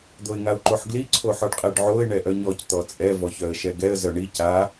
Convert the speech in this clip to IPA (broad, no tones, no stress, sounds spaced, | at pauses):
d̪ o ɪ̯ ŋ a ʊ̯ ǃ o ħ ɡ l i ǀʰ o ħ ɔ ɖ qʼ ɛ ɖ ʕ o ɪ̯ ɳ ɛ ʔ œ ɲ ɔ c t̪ ɔ t͡sʼ ɛ v ɔ ç œ ə̯ ʃ ɛ ɡ ɛ ə̯ z œ ɳ i c a